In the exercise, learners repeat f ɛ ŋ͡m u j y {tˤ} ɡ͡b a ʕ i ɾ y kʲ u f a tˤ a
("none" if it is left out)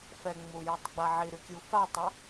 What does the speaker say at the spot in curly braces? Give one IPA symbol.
tˤ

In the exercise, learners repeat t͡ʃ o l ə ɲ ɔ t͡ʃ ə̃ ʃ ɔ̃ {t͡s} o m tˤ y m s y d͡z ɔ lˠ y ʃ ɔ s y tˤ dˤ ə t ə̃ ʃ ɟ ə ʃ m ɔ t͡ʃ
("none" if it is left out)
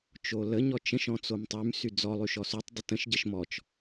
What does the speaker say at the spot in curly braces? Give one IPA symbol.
t͡s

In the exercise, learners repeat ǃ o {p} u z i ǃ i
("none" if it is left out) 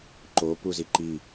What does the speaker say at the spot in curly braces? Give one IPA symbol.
p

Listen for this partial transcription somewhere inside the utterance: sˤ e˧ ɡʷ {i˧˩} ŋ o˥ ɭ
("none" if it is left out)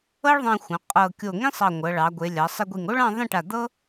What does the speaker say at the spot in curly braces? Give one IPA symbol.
i˧˩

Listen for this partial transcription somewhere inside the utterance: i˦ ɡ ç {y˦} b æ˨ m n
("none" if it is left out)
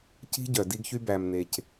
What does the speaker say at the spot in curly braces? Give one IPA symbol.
y˦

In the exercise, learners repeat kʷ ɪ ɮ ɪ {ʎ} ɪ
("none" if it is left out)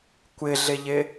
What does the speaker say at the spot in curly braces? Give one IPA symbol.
ʎ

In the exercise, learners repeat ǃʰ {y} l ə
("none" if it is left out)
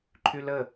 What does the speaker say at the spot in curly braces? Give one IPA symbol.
y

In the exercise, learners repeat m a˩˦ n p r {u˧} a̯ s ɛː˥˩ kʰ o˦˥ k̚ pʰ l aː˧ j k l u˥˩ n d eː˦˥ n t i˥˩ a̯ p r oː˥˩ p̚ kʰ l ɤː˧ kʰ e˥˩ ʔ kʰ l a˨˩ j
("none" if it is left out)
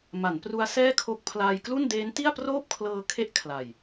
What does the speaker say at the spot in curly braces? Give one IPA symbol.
u˧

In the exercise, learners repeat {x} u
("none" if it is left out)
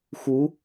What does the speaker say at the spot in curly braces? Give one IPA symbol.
x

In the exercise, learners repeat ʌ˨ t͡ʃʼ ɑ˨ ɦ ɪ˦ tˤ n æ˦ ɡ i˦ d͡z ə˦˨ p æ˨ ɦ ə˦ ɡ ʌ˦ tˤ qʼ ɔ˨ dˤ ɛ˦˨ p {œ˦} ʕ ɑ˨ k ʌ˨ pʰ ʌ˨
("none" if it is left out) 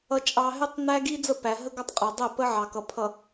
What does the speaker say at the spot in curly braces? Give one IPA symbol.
ə˦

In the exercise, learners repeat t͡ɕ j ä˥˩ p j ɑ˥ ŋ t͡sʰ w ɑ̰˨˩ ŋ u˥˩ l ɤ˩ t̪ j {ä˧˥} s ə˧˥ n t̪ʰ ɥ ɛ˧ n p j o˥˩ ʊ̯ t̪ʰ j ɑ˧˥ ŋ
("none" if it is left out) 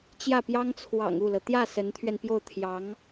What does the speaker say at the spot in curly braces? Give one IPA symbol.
ä˥˩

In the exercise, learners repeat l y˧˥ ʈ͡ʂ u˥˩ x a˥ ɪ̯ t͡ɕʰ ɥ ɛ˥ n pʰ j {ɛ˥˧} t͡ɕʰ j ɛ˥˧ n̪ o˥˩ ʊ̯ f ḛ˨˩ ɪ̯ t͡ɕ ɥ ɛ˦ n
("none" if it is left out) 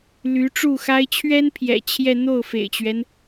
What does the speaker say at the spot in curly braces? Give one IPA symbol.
ɛ̰˨˩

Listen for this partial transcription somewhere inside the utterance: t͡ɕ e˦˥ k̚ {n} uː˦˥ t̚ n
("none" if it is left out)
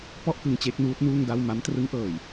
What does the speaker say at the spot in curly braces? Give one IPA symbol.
n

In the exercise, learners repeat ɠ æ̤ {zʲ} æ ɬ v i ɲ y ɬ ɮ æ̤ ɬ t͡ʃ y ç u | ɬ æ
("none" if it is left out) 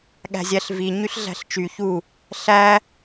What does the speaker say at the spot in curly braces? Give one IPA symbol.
zʲ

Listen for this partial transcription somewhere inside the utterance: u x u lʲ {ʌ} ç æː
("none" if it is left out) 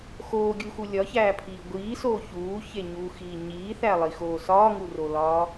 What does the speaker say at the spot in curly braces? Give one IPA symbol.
ɒ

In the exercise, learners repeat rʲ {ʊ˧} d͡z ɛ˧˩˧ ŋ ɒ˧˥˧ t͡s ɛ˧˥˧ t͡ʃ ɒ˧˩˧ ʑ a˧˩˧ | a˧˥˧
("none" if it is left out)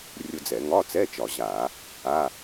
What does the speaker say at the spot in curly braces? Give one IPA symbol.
ʊ˧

